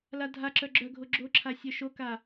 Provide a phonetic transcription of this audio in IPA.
ladʱaǁœ ɡ͡ǁœɡʱo ɡ͡ǁoǁʰa sʲœʃoka

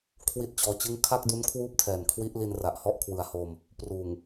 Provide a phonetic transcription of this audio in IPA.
kʰwi˥˩t̚t͡ɕɔː˧t͡ɕɯ˥˩ŋ kʰa˥˩k̚du˦˥n kʰwuː˥˩p̚tʰɛː˨˩nkʰwi˦˥ʔli˧n ra˨˩ʔhɔ˥˩ʔ kʰwɯ˨˩a̯hoː˧m | pruː˨˩ŋ

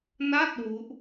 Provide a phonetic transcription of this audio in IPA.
na˥˩t̚ wu˦˥ʔ

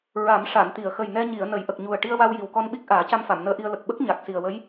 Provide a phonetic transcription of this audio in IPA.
ɹa˨˩˦mʂa˨˩˨nt̪i˨˩˨ə̯ xə˨˩jnɛ˧ɲi˨˩˨ə̯ nə˨˩˦jʔə˨˩k̚ɲu˨˩ə̯ ʈi˧ə̯wa˧w ji˨˩wkɔ˧nɓi˦˥k̚ ʔaː˨˩˦ca˧mfa˨˩˨m nəː˧˥ʔi˧ə̯lə˨˩k̚ ɓə˦˥k̚ ɲa˨˩k̚si˨˩ə̯wə˧˥j

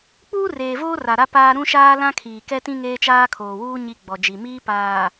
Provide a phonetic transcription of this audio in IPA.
k͡puː˦reː˨voː˦ ra˨ɾa˦ paː˦ ɾũ˦ʃaː˦ lã˦kʰiː˨kɛ˦tĩ˦ ŋeː˦t͡ʃaː˦kʰoː˨wuː˦ ɲi˦ɡ͡bɔ˨d͡ʒi˨ miː˦ paː˨

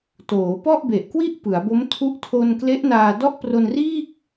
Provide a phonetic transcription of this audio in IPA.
toː˩˦pɔ˥˩ʔbe˨˩ʔkwi˥˩ʔ pɯ˩˦a̯bo˦˥m tʰu˦˥ʔtʰo˧n kle˦˥ʔnaː˧dɔ˥˩ʔ pro˧nriː˥˩k̚

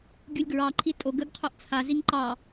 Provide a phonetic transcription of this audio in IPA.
ɡʲulʲɡɹɑǃʰi tʼo ɡəɡ qʰœʔt͡sʰa ziŋǃɑ

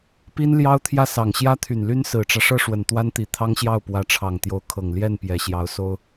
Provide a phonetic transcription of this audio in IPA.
pi˥nljɑ˥ʊ̯t̪ʰjä˥˩ sɑ˨˩ŋɕjä˥t̪ʰy˨˩nly˥n sɹ̩˨˩ʈ͡ʂä˦ ʂɤ˥ʂwə˨˩nt̪wa˥nt̪i˨˩ t̪ʰɑ˥ŋɕjɑ˥˩ʊ̯pwä˧˥ʈ͡ʂʰɑ˨˩ŋ t̪jo˧˥ʊ̯kʰɤ˨˩ŋ ljɛ˥˩npjɛ˨˩ɕjɑ˧˥ʊ̯so˥ʊ̯

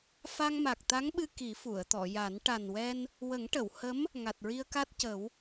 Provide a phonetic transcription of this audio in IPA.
fa˧ŋma˨˩k̚t̪a˧˥ŋɓɨ˧ ki˨˩˦fu˨˩˨ə̯ t̪ɔ˨˩˨ja˨˩˦n ʈa˨˩nwɛ˧n | wə˨˩˦ŋʈə˨˩˨w hə˧˥m | ŋa˨˩t̚ɹi˧ə̯ka˦˥t̚cə˨˩˦w

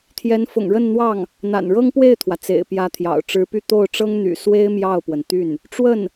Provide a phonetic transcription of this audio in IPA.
t̪ʰjɛ˧˥nfʊ̰˨˩ŋɻə˥˧nn̪wɑ˥˩ŋ | n̪a̰˨˩nɻɤ˥ŋpwe˥˩ɪ̯t̪ʰwä˩ t͡sḛ˨˩ɪ̯pjä˧˥ t̪ʰjɑ̰˨˩ʊ̯ ʈ͡ʂɻ̩˧˥py˥˧ t̪o˥˩ʊ̯ ʈ͡ʂɤ˥ŋn̪y̰˨˩ swe˥ɪ̯ mjɑ˥˩ʊ̯pwə˩nt̪y˥˩n | ʈ͡ʂwə˥˩n

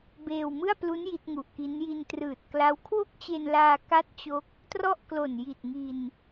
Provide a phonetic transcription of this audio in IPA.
beː˧wmɯ˥˩a̯plu˦˥n ji˦˥t̚ŋu˨˩ʔki˦˥n ji˧ntrɯː˨˩t̚kla˦˥w kʰwo˥˩k̚t͡ɕe˧nlaː˧ ka˥˩t̚t͡ɕo˦˥k̚ | trɔ˥˩ʔklo˨˩nji˨˩t̚ ŋi˧n

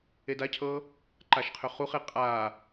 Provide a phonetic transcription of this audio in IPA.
edacʰɤ | ǃaʃqʰøχuχe qʼa

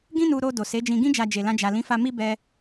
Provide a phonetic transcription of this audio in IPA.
ɡĩ˦nu˧ ɾo˧ do˨se˨˦d͡ʒĩ˧ɡĩ˦ d͡ʒa˧d͡ʒe˨lã˧ d͡ʒa˨ lĩ˨˦fa˧ mi˦ bɛ˧

